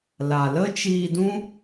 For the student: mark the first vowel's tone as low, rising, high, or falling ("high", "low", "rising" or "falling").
low